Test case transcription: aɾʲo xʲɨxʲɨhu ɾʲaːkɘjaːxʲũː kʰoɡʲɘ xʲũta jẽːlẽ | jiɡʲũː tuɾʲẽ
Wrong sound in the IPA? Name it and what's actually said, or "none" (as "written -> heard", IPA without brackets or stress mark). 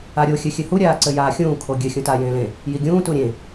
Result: k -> ǀ